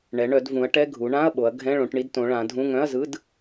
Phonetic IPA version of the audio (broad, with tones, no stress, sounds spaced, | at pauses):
ɳ ɛ˩˧ ɳ œ˩˧ d v ũ˩˧ ɐ̯ ʈ ɛ˧˥˧ ɡʱ u˩˧ ɳ ã˧˥˧ ɐ̯ ɓ o˩˧ ɐ̯ ɡʱ ɛ̃˧˥˧ ɭ õ˩˧ ʈ ɳ i˧˥˧ d t õ˩˧ ɭ ã˩˧ dʱ ũ˧˥˧ ŋ œ̃˧˥˧ ɐ̯ z ɯ˧˥˧ d